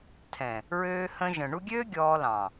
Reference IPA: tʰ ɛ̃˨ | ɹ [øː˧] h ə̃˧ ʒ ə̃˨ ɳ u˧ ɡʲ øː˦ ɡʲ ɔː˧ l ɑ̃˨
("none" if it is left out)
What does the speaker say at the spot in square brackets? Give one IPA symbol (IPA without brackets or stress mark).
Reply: øː˧